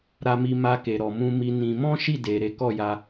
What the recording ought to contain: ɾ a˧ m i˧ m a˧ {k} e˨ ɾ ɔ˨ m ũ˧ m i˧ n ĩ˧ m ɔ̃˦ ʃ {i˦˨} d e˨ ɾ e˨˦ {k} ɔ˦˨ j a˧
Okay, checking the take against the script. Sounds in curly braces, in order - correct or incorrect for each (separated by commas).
correct, correct, correct